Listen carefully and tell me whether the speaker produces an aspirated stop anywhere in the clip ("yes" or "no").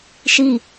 no